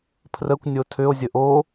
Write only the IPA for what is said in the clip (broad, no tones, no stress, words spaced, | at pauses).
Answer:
pʰrəkʷ nʲotʰʏo̯ zʲəʔo